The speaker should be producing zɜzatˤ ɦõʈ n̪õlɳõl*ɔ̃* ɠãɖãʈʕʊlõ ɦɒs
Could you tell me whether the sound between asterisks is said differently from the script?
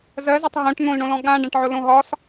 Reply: no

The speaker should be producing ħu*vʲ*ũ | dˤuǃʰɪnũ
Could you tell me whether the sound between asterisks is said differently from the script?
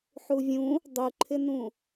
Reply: no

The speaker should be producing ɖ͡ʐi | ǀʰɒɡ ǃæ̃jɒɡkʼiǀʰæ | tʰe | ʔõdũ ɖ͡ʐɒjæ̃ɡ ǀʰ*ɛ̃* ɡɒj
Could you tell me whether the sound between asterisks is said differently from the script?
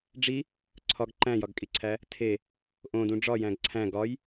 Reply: yes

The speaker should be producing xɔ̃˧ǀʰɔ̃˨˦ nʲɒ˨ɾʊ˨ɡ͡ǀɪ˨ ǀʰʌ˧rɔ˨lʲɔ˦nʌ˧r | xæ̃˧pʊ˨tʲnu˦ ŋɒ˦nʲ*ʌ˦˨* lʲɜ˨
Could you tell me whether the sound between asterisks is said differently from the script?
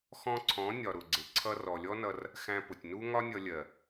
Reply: yes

